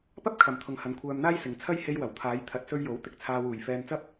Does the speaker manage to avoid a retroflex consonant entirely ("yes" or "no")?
yes